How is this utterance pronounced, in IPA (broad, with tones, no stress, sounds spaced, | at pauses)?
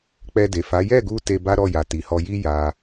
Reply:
k͡p ɛ˧ d e˨ f a˨˦ j ɛ˦˨ ɡ u˧ t e˧ b a˦ ɾ ɔ˦˨ j a˨ t i˨ h ɔ˧ j i˦ j a˧